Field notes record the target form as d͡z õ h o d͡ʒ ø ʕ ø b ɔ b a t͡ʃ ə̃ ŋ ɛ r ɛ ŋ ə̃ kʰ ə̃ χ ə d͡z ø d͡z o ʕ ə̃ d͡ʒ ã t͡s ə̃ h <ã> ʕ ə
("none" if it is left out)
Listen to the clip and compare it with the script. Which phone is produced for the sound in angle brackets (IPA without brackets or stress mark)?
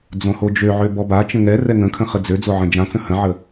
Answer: ə̃